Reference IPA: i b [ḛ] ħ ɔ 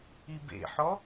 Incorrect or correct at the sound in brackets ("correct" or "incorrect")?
correct